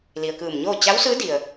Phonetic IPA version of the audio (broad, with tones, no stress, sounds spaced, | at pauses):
l i˩ ə̯ k ɯː˧˩ m ɲ oː˥˨ t͡ɕ a˧˥ w s ɯː˧˥ d i˩ ə̯